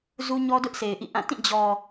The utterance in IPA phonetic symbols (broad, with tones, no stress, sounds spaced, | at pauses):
z u˦ ɲ ɔ˦ d ʊ˦ ʔ s e˨ ɪ̯ ʔ ḭ˦˨ ʔ ã˦˨ t ĩ˦˨ d͡ʑ ɔ˨